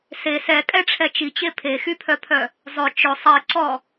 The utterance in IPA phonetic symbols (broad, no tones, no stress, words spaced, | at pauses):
se sɛkʼɛʈ͡ʂʰɛ t͡ʃit͡ɕe pʰexypʰœpʰœ | zˤɵ t͡ʃɵ sˤiǀɔ